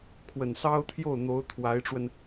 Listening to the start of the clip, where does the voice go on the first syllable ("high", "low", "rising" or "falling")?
low